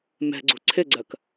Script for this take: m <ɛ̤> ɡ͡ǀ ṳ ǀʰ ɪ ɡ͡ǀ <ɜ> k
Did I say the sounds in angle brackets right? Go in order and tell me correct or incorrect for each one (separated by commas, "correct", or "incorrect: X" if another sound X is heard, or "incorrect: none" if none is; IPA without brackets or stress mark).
correct, correct